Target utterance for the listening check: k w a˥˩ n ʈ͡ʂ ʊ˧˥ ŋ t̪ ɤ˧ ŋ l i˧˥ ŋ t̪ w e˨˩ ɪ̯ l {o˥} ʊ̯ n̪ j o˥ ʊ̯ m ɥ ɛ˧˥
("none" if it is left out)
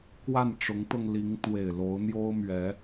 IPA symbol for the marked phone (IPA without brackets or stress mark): o˧˥